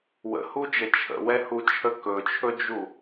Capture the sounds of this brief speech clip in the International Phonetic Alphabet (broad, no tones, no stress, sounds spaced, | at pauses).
w ə̰ h u d͡ʒ ə t͡ʃʰ ə̰ w ɛ h u t͡ʃʰ ə k ɵ t͡ʃʰ ɵ d͡ʒ u